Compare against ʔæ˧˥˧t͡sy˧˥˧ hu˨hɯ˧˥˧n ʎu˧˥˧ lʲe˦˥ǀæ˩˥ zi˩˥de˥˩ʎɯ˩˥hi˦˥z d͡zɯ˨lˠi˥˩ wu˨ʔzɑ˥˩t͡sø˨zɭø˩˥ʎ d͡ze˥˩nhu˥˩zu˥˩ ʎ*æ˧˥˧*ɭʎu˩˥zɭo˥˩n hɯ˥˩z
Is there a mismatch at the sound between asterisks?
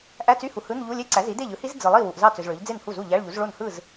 no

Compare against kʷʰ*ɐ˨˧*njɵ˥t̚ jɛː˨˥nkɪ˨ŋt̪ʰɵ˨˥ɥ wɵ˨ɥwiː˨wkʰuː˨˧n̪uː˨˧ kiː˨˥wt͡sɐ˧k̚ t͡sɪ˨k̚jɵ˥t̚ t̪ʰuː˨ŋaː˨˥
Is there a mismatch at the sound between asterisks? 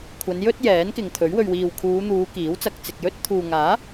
no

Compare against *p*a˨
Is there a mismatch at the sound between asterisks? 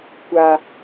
yes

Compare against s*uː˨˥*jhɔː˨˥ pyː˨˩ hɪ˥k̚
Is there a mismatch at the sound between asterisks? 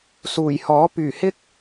yes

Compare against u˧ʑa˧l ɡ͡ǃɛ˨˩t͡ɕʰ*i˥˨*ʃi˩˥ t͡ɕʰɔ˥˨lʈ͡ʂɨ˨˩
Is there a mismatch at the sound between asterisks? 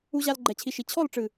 yes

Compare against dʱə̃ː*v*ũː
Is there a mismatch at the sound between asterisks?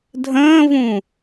no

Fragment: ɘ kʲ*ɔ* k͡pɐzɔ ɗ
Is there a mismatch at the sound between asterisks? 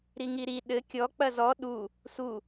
no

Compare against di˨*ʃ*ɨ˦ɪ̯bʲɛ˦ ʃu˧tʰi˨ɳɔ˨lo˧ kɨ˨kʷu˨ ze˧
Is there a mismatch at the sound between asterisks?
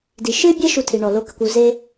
no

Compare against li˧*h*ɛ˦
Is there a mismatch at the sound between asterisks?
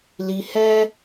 no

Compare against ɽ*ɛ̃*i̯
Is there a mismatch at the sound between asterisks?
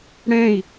no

